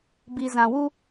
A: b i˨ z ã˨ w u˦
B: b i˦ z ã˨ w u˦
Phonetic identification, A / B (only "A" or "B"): A